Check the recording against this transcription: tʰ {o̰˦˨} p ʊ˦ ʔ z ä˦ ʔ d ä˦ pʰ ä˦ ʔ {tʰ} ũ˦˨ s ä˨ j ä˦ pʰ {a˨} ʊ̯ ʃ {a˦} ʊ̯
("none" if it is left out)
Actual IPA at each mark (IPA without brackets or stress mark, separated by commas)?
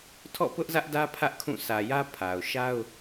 ɔ̰˦˨, kʰ, a˨, a˦